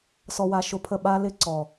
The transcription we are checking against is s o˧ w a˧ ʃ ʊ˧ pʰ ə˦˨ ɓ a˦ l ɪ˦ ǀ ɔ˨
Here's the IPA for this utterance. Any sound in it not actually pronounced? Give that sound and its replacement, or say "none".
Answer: o˧ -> ɔ˧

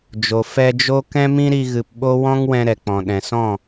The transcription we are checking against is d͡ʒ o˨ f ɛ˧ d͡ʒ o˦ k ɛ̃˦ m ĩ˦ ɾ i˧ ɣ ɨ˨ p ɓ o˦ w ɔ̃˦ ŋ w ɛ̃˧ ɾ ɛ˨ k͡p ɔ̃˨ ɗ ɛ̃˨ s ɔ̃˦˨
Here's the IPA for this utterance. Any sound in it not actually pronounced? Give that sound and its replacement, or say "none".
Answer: none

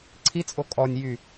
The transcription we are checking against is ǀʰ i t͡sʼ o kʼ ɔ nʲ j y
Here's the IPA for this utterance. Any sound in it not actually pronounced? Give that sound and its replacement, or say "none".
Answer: none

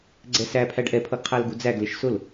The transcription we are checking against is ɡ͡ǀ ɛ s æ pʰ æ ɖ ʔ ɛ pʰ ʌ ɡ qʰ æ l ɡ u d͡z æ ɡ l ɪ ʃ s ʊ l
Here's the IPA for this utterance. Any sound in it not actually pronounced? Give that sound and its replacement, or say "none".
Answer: none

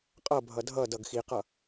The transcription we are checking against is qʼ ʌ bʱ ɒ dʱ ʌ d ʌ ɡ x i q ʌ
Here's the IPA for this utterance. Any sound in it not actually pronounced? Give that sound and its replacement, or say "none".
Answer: ɒ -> ʌ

